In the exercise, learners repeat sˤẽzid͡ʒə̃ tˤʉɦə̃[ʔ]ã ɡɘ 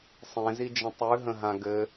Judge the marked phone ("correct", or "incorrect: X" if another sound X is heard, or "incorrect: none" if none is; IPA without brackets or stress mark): incorrect: ɦ